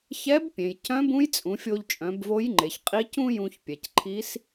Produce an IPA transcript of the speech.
ç ɛ˧˥ b pʲ ẽ˩ j c œ̃˧˥ b ũ˧˥ j t͡sʼ ũ˩˧ fʲ o˧ ʎ t͡ʃʼ œ̃˩˧ b v o˧˥ j ŋ͡ǃ e˩ ç qʼ i˧˥ c ũ˥ j ũ˧ ç pʲ ɛ˩ c ǃʰ i˧˥ s

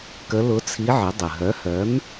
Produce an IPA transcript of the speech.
k ə˧˥ l ʊ˧˥ t͡sʰ i˧˥ ʕ ə˩˥ dˤ ə˩ ɦ œ˩˥ h œ˩˥ m

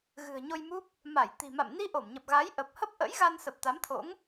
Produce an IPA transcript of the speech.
ɣ ɨ̤˨˩ ə̯ ɲ o˧ j m u˦˥ p̚ | m a˧˩ j t̪ i̤˨˩ m a̰˧˨ m n i˧ ʔ o˧˩ m ɲ ə˨˩ p̚ ɣ a˨˦ j ʔ ə˨˩ p̚ h ə˦˥ p̚ ʔ ə̰˧˥ j ɣ a˧ n s ə˨˩ p̚ t̪ a˨˦ m t̪ʰ o̰˧˥ ŋ

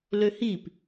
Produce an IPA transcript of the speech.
l ø h i p

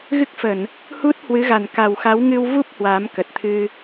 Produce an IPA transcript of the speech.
ɣ ɨ˦˥ k̚ f ə˧˩˨ n | h u˦˥ t̚ h w ɨ˨˦ ɣ a˨˩ n k a˨˩ w x a˨˦ w ŋ ɨ˧ w v u˦˥ p̚ h w aː˨˦ m k ə˨˩ t̚ t̪ʰ ɨ˧

